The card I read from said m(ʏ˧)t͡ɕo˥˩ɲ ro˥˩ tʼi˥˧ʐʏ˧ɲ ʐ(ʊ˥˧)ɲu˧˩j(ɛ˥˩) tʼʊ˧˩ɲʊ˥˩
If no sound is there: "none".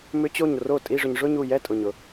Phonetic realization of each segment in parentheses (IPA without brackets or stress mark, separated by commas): ʏ˦˥, ʊ˥˧, ɛ˥˩